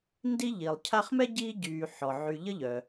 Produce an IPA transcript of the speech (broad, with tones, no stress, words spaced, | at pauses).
ndi˥ʎi˩lˠ cʰa˦χmɛ˥ ɟiː˦ɟyː˨ħɔ˩ ʕy˨ʎə˥ʎœ˩